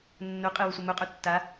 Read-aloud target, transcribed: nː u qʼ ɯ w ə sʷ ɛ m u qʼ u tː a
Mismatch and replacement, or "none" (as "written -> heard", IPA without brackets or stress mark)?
none